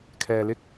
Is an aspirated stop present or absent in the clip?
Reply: present